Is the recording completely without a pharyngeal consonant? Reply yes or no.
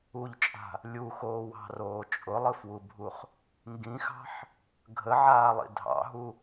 no